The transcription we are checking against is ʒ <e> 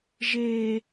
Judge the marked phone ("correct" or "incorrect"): correct